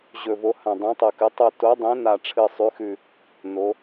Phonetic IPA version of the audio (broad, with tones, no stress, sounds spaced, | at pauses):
ʑ ɵ˨˩ v o˩˧ h ã˨˩ dˤ ũ˩˧ tˤ ɵ˨˩ k ɨ˩˧ tˤ ɵ˨˩ t o˩˧ dˤ ẽ˩˧ n a˨˩ ʈ͡ʂʰ ɨ˨˩ sˤ ʉ˩˧ x ʉ˨˩ | n o˩˧